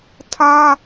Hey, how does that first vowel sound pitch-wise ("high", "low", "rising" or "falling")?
high